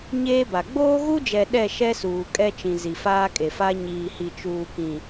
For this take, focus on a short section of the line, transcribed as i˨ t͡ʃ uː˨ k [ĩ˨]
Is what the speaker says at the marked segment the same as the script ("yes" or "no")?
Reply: yes